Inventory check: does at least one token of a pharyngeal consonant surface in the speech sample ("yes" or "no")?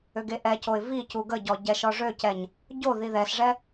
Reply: no